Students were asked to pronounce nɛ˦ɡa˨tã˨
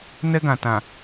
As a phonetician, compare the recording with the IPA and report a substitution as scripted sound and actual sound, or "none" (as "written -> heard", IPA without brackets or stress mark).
a˨ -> ã˨